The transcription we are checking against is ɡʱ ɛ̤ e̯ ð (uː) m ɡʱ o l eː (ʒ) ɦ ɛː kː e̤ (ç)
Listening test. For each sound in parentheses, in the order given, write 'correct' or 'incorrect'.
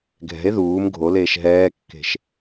correct, incorrect: ʃ, incorrect: ʃ

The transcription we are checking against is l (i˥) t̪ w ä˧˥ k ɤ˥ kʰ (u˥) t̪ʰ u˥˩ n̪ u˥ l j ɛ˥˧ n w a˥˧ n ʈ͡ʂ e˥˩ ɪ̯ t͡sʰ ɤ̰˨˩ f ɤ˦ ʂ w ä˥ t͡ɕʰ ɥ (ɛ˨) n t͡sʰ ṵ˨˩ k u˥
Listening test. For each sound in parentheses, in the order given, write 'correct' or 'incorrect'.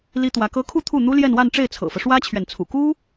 correct, incorrect: u˥˧, correct

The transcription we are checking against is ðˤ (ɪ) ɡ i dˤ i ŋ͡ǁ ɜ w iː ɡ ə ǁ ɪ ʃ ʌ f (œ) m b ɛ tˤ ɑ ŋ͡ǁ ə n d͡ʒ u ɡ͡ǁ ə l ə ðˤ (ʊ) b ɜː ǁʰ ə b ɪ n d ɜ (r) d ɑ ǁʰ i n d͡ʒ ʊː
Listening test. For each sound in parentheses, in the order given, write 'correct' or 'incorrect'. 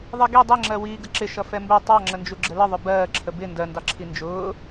incorrect: i, incorrect: ɛ, correct, incorrect: n

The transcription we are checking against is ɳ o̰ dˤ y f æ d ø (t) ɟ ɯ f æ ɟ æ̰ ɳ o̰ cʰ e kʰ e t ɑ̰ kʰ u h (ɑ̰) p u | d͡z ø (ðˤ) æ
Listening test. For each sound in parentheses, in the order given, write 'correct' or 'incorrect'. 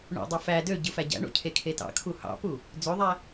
incorrect: none, correct, correct

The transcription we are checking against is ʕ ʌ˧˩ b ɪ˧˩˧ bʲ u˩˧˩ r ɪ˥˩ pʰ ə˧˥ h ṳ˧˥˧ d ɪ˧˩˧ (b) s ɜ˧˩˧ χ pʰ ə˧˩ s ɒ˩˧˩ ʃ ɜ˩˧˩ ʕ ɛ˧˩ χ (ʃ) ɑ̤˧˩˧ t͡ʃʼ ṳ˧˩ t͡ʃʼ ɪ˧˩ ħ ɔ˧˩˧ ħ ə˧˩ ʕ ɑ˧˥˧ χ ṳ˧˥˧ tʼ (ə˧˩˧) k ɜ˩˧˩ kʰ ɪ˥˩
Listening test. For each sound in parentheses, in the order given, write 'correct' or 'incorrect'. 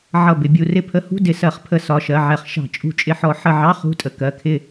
incorrect: none, correct, incorrect: ə˧˩

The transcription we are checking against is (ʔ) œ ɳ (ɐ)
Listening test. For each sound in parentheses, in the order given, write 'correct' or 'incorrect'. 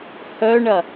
incorrect: h, correct

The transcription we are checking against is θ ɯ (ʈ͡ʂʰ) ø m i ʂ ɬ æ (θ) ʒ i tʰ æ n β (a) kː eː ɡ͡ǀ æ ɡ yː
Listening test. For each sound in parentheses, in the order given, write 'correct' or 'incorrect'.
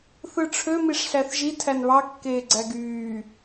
correct, correct, incorrect: ɑ

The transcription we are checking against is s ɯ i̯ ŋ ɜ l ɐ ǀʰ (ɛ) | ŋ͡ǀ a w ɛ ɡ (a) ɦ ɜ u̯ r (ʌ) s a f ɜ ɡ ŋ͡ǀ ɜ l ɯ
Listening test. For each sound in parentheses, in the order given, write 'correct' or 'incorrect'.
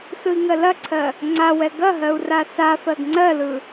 incorrect: ɜ, incorrect: ɐ, incorrect: a

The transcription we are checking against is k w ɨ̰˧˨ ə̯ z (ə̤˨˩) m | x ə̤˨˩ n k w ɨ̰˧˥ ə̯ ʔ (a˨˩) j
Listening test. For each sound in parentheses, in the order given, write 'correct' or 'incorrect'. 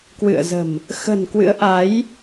correct, incorrect: a˨˦

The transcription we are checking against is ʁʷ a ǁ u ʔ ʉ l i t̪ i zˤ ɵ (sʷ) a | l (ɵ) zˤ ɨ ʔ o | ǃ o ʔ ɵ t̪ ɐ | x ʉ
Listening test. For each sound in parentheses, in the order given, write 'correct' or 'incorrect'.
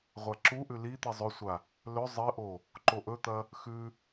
correct, correct

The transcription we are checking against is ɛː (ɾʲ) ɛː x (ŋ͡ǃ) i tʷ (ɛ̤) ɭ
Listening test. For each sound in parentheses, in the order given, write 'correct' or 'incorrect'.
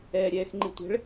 correct, correct, correct

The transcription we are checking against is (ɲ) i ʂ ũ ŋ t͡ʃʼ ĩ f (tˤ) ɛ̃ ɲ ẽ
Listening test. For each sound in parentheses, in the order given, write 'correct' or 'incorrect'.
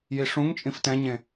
incorrect: j, incorrect: t

